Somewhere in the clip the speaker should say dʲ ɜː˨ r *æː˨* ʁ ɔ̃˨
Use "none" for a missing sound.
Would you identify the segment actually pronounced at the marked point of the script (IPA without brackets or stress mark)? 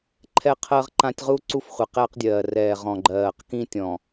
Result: ɛː˨